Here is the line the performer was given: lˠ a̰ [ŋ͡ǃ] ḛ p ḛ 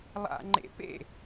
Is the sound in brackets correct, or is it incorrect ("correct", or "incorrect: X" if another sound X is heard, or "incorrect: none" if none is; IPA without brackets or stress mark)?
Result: correct